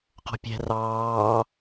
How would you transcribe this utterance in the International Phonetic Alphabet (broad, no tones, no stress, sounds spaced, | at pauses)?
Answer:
q ɔ̤ pʲ ɛ̤ r ɑː